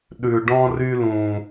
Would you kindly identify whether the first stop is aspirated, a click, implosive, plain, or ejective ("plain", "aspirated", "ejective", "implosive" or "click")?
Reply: implosive